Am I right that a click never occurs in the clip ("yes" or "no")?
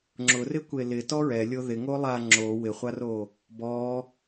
no